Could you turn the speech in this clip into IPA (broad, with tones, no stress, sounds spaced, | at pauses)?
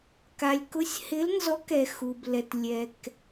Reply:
k a˨ lʲ k ʊ˧˥ sʲ h ɪ˧˥ l n z ɔ˧˥ k ɛ˨ x u˨ b l ɛ˨ t lʲ ɛ˨ k